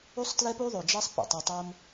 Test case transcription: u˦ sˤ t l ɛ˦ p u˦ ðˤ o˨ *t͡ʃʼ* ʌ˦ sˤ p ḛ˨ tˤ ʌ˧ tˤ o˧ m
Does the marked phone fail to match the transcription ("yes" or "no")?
yes